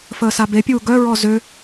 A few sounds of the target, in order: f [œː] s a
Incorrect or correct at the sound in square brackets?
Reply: incorrect: əː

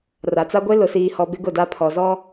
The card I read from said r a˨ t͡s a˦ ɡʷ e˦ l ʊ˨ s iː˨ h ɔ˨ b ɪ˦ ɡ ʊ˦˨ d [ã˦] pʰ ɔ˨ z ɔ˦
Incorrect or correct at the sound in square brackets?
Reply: incorrect: a˦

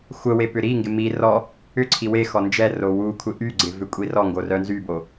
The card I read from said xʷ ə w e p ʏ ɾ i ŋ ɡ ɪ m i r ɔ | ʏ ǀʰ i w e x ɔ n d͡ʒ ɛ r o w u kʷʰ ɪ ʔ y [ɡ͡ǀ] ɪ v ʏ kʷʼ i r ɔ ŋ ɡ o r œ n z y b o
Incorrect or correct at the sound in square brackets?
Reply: correct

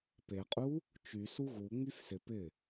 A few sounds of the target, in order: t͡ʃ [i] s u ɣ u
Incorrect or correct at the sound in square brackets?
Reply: incorrect: y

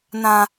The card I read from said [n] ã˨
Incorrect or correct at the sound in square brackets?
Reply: correct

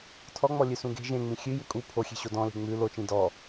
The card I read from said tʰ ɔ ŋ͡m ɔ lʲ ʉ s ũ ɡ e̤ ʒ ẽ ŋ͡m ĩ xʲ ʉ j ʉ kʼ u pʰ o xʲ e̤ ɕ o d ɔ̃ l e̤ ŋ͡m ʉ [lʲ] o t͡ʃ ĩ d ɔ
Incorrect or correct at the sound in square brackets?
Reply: incorrect: l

